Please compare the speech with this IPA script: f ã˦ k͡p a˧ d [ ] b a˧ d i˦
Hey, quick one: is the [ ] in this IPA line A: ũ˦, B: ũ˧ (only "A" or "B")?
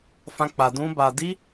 A